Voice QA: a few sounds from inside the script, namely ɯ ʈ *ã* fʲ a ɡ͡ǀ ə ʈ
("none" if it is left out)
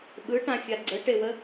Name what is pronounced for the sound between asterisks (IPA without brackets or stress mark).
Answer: ã